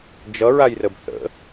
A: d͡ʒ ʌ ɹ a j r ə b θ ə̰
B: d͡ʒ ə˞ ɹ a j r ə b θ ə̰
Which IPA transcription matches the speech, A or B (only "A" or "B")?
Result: A